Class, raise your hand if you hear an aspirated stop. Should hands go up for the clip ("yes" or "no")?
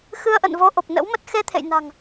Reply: yes